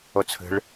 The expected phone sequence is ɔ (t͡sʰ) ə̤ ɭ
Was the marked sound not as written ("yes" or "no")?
no